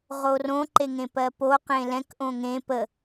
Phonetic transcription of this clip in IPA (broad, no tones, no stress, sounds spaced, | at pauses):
ʁ o r õ ǃ e ŋ ẽ p ɜ p o q ẽ l ɛ̃ k ʔ õ ŋ ẽ p ə